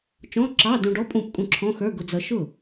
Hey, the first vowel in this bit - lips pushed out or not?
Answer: yes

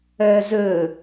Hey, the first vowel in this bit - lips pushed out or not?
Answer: yes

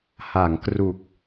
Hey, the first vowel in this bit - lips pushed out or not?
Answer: no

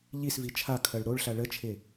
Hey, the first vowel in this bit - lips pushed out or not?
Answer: no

